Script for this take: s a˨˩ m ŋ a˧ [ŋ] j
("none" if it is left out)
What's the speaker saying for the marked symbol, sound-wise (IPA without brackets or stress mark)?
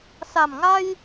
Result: none